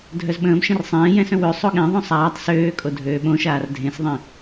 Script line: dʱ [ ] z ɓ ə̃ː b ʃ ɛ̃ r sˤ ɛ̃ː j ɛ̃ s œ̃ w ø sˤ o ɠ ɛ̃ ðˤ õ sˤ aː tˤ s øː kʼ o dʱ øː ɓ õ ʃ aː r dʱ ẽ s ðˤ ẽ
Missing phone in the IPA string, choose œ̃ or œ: œ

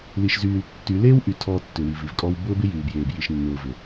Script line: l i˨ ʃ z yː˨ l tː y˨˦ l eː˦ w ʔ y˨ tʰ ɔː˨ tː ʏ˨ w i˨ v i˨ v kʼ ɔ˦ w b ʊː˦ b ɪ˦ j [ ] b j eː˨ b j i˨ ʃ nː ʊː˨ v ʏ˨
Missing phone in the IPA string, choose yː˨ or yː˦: yː˨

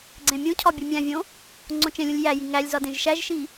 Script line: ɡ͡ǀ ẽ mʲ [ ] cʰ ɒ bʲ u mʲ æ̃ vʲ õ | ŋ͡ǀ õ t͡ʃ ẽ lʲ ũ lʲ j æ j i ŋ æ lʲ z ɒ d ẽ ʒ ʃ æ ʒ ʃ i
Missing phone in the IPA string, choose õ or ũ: ũ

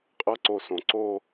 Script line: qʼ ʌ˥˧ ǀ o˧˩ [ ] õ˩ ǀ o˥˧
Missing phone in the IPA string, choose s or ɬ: s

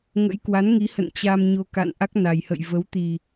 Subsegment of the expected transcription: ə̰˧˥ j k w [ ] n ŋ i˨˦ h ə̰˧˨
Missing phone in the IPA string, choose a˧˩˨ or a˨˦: a˨˦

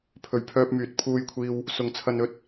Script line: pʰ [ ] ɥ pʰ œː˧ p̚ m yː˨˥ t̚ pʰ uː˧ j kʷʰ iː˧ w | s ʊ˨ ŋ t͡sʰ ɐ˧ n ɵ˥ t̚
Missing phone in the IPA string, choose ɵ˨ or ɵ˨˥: ɵ˨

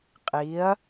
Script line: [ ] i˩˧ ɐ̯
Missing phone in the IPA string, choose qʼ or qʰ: qʼ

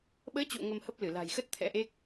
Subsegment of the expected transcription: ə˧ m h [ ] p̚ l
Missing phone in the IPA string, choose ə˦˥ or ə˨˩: ə˦˥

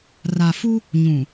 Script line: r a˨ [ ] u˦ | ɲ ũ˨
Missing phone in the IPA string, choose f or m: f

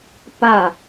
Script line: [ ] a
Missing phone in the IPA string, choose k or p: p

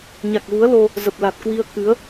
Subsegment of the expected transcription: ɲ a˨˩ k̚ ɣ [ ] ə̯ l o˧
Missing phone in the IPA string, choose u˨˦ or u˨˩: u˨˦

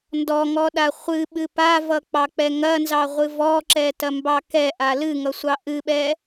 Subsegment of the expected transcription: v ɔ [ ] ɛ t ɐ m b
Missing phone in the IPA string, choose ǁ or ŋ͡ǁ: ǁ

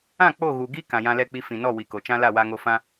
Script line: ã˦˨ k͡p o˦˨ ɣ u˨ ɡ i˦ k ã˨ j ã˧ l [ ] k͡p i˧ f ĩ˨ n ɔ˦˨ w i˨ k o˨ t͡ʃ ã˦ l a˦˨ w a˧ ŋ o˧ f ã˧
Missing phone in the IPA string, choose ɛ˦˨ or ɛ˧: ɛ˦˨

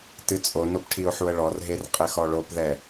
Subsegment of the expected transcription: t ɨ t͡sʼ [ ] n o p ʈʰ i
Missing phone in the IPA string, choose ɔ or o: o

